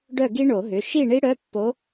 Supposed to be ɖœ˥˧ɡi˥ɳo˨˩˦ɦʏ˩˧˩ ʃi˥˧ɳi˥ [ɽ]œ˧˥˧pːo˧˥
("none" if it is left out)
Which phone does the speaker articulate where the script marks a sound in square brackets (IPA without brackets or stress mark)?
ɽ